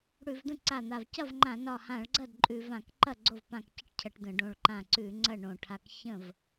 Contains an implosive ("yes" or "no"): no